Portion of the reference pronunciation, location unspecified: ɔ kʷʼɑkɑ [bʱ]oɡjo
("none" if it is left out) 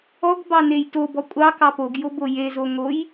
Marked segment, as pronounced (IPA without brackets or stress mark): p